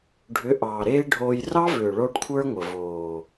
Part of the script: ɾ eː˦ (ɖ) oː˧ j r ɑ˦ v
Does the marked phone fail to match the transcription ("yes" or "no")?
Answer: yes